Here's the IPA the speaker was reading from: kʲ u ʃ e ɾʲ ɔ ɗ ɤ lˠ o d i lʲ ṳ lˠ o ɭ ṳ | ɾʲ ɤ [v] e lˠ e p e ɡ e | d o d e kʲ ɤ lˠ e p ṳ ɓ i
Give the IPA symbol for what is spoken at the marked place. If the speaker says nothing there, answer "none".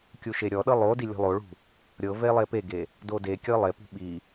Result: v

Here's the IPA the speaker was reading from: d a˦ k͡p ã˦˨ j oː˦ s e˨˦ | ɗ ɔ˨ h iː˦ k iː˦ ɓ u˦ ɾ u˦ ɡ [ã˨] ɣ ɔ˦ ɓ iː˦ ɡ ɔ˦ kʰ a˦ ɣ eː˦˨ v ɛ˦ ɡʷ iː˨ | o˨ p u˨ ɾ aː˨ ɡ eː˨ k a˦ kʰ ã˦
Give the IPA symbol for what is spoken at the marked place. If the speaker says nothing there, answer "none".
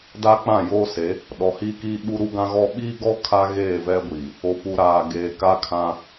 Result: ã˦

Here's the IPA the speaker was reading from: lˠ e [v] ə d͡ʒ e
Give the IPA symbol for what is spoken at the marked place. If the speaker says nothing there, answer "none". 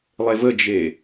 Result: v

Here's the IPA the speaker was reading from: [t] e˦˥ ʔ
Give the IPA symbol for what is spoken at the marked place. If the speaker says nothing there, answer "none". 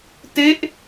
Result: t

